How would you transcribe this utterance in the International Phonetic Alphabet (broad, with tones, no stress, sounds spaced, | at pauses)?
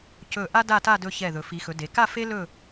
c ɵ˧˩ ʔ a˥ d a˥˧ t a˥˧ d ɵ˧ ç ɛ˧˩ ð ɵ˩˧ f i˩˧ x ɵ˩˧ d e˩˧ k a˥˧ f e˥ l ɵ˥˧